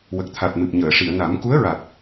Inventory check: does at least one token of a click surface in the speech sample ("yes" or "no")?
no